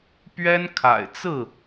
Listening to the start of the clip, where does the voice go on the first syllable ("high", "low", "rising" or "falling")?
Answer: high